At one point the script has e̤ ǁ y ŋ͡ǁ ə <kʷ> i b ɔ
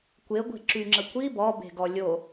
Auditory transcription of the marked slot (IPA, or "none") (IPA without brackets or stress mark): kʷ